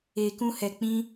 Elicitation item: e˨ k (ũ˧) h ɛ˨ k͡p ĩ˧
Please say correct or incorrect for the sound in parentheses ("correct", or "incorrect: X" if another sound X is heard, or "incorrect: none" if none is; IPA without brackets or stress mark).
correct